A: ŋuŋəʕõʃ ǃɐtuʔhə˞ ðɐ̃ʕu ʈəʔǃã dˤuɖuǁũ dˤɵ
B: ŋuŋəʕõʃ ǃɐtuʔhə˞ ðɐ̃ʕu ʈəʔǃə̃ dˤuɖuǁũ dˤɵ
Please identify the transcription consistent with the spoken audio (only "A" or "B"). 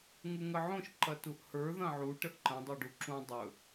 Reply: B